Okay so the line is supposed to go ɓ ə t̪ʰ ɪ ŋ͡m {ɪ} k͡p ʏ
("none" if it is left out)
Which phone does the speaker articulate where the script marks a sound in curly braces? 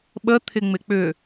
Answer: ɪ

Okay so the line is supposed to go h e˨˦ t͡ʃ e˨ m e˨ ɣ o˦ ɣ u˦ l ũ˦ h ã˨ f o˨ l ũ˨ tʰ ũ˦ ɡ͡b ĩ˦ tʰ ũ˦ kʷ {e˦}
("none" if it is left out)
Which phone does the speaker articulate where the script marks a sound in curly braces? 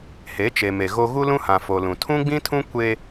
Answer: e˦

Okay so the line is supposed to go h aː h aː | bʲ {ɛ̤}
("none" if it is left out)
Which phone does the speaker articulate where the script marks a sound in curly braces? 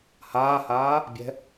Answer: ɛ̤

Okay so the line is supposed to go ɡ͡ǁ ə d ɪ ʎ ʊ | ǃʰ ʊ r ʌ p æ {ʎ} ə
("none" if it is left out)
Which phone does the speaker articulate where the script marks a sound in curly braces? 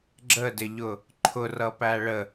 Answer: ɭ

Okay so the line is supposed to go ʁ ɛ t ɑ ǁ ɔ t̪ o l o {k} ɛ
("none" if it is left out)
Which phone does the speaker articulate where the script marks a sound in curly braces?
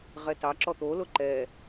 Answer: ǃ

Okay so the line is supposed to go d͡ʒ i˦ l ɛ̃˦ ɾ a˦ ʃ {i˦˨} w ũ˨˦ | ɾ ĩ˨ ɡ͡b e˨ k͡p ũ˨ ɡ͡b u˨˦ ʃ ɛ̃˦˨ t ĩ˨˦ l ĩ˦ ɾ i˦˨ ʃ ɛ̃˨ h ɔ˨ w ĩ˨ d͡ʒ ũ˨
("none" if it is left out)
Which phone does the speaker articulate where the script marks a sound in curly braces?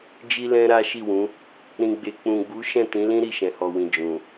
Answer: i˦˨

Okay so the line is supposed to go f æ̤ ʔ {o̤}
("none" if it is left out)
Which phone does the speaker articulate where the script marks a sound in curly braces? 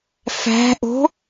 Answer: o̤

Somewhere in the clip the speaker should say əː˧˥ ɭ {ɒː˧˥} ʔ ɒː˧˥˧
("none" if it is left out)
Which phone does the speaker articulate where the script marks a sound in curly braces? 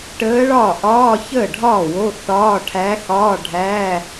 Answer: ɒː˥˩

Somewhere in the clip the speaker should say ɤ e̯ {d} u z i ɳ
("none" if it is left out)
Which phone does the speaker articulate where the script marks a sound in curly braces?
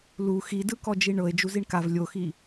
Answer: d͡ʒ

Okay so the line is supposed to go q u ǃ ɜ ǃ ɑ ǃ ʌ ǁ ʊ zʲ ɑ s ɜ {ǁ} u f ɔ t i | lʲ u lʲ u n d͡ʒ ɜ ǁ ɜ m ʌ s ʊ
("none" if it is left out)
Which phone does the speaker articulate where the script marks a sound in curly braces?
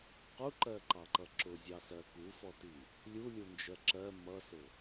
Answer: k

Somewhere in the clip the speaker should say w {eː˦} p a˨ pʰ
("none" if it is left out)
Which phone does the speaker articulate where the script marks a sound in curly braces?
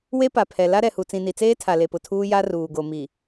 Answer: e˦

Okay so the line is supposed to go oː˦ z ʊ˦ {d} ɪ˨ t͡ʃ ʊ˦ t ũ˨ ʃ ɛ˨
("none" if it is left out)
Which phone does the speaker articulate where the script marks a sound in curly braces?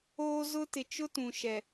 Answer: t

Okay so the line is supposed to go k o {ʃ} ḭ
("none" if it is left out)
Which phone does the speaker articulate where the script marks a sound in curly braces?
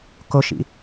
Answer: ʃ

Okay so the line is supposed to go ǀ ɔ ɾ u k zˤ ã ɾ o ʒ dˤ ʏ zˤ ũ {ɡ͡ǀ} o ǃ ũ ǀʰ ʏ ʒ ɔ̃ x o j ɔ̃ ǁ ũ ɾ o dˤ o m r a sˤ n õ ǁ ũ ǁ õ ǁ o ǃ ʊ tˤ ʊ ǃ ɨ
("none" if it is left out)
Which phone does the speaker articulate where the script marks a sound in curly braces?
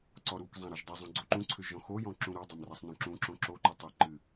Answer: ɡ͡ǀ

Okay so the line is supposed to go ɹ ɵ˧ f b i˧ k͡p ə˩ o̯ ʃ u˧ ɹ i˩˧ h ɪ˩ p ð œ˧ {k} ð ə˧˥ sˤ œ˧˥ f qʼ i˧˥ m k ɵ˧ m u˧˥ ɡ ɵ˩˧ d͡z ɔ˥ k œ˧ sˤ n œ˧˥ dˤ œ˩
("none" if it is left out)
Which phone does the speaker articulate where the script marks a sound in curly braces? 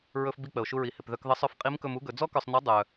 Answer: k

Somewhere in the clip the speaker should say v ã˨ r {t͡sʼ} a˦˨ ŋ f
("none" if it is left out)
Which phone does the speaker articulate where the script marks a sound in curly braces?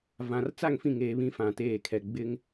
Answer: t͡s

